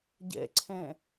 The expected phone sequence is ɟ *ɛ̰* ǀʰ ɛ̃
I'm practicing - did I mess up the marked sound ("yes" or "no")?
no